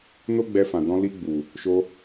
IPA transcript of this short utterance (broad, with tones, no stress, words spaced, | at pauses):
no˦ɡ͡bɛ˧fã˨ dɔ̃˧ li˧ɡ͡bu˨ | ʃo˧